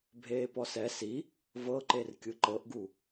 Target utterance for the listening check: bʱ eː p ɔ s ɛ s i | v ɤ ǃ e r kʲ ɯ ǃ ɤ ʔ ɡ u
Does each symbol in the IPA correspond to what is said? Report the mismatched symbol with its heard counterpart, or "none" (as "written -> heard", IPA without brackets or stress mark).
none